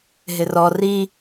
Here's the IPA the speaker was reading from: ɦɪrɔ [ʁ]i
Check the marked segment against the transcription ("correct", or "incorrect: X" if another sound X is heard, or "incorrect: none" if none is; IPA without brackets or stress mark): incorrect: r